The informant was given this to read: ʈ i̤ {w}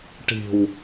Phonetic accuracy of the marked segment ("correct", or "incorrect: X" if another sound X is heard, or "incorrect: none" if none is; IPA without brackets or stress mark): correct